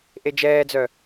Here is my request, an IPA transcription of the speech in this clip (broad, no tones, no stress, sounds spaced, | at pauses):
ʔ e d͡ʒ ɛː d͡z œ